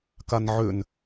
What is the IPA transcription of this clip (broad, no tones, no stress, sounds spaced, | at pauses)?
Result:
k a n ʕ ʏ n